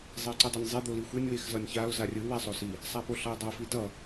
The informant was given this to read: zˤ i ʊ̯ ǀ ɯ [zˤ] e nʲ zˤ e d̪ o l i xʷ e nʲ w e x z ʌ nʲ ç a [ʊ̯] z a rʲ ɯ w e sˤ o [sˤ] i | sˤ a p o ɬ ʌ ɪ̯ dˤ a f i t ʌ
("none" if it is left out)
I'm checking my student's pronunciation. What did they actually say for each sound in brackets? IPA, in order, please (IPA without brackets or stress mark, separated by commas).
dˤ, ʊ̯, s